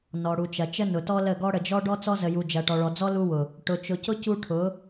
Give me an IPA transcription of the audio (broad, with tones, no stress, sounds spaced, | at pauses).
n ɔ˨ ɽ u˨ t͡ʃ ɐ˨ t͡ʃ ə˦ n ʊ˨ t ɔ˦ l ə˦˨ ɡ ɔ˦ ɽ ə˨ d͡ʒ ɔ˦ ɖ ɔ˦ t͡s ɔ˦ z ə˨ j u˨ d͡ʒ ɐ˨ ʈ ɔ˨ ɭ ɔ˨ d͡z ɔ˦ l u˦ w ʊ˨ | ʈ ʊ˨ t͡ʃ ʊ˨ c ʊ˦ c u˦ ʈʰ ʊ˨˦